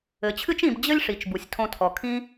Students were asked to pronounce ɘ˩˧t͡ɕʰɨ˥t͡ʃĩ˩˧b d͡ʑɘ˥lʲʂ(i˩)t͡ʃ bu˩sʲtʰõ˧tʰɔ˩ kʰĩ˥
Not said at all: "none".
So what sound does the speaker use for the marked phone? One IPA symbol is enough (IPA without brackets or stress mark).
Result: i˩˧